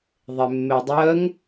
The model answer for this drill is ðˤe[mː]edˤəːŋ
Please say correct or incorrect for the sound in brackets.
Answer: correct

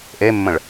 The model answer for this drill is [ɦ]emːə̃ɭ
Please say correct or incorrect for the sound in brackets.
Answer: incorrect: ʔ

